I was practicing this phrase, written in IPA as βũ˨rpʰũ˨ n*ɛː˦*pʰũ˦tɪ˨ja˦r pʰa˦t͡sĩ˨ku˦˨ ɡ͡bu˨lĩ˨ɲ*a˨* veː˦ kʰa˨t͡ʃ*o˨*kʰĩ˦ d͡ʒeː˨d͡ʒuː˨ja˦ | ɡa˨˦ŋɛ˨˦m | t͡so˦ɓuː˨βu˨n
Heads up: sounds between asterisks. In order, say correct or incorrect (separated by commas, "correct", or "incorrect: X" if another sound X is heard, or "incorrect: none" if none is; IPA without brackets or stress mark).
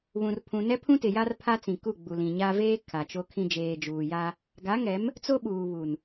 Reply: incorrect: ɛ˦, incorrect: a˦, incorrect: o˦